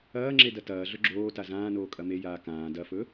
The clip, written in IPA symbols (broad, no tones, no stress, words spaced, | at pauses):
ɐːŋ͡ǁe dɐtɐːɮɵ ɡ͡ǁoːta zãːnoː kʼɐmejaː kãː dɐfɵ